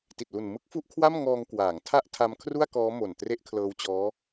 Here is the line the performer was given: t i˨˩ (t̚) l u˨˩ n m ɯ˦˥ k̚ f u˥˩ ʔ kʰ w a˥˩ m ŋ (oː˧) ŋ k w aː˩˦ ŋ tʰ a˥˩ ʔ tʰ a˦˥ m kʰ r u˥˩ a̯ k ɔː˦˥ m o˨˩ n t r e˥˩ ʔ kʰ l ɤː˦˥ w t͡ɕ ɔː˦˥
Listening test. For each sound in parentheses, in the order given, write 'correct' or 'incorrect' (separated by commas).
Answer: correct, incorrect